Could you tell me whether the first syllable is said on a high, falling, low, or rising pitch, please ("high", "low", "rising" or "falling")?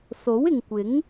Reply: rising